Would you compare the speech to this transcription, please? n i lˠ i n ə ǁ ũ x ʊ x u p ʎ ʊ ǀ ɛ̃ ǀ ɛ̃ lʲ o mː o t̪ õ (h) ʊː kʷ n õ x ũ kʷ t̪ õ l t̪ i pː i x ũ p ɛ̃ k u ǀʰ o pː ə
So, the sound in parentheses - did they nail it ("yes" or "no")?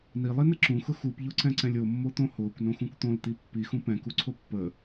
yes